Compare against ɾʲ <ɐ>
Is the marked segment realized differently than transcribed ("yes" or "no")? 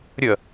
no